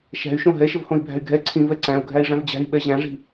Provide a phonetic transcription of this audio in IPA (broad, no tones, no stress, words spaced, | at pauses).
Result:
ʃæ̤y̯ʃõ ɦɛʃəvhõi̯bʱæ̤y̯ ɡʱɛ ǀʰĩvɛ ǀæ̃u̯ɡʱæi̯ʐæ̃v d͡ʑæ̤i̯ɓɛ ʑæ̃ʐi̤